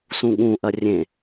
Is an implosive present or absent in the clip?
present